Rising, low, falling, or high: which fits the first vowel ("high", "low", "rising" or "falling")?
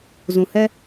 low